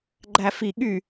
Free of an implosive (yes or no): no